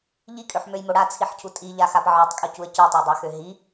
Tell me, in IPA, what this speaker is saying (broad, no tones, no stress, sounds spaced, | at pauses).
ʎ i kʼ ø ħ m ø j m o ɽ a t͡sʰ i ħ cʰ u tʼ i ʎ a x a p ʕ ɔ tˤ kʼ o c u ə̯ c ø tˤ o dˤ ɛ x ø ɦ i